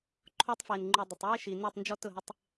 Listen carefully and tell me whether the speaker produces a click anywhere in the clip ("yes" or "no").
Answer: yes